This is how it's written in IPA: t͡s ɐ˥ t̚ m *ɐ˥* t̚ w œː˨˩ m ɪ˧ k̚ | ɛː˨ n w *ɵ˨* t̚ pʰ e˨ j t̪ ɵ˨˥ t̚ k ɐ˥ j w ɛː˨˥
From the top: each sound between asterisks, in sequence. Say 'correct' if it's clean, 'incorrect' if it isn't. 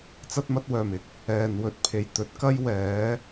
correct, correct

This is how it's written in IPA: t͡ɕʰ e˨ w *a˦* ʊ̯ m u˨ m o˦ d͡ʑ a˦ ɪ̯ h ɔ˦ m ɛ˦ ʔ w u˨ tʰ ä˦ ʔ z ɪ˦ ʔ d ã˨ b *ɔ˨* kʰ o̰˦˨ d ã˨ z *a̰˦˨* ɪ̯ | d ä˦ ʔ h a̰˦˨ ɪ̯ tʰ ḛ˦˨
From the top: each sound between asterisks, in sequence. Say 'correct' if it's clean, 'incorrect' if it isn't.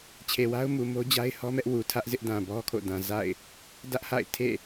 correct, incorrect: ɔ˦, correct

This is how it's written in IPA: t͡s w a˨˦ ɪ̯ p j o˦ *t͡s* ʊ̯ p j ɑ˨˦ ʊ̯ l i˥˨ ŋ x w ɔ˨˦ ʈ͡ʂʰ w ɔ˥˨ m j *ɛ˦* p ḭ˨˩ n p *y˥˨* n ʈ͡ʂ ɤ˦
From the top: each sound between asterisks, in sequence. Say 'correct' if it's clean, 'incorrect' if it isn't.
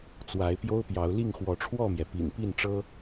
incorrect: none, incorrect: ɛ˩, incorrect: i˥˨

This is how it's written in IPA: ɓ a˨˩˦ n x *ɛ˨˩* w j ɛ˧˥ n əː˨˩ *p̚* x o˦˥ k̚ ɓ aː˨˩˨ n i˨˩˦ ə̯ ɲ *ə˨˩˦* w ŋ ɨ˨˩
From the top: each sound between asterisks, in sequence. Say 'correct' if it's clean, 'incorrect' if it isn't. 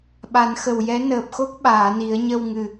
incorrect: ə˨˩, correct, incorrect: ə˧

